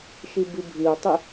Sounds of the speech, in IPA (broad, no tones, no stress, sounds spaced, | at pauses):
ʃ i b i bʱ i u̯ tˤ i